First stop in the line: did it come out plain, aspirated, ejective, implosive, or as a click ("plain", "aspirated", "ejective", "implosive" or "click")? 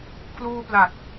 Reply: aspirated